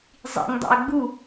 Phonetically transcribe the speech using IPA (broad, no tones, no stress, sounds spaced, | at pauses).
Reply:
zˤ ḭ ŋ dˤ ḭ o̯ ɡ͡b u